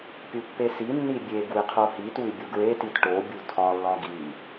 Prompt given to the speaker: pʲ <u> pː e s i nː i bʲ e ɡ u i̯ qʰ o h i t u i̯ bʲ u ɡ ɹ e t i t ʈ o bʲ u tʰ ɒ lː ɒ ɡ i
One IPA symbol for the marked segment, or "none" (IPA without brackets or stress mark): u